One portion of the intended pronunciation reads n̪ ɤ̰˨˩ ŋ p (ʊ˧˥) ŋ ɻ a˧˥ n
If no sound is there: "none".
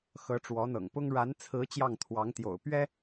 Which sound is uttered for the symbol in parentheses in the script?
ʊ˥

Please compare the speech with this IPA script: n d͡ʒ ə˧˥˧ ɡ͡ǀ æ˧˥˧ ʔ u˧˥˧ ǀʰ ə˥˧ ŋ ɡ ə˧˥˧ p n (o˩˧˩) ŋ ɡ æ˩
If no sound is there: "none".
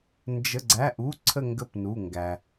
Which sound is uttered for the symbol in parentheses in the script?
u˩˧˩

